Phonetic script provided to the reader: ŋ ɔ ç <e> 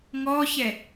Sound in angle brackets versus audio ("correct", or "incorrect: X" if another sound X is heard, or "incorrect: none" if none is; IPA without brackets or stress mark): incorrect: ɛ